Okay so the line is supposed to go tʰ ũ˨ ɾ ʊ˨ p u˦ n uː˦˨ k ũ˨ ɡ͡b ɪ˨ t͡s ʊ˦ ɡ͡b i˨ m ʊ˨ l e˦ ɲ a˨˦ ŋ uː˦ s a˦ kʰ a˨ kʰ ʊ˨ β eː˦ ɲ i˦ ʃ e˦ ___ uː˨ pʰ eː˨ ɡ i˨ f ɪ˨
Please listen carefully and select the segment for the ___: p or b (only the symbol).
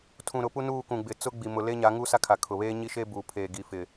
b